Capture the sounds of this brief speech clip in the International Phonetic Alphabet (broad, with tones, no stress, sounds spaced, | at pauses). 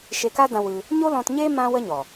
ʃ e˧ k a˦ d ã˧ w ɨ˧ | ɲ o˦ l ɔ̃˧ t ɲ e˦ m ã˦ w ə˦ ɲ ɔ˨